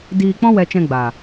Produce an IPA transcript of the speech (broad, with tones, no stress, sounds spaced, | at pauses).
d iː˧ k͡p ɔ̃˦ w ɛ˧ t͡ʃ ɛ̃˧ ɡ͡b a˨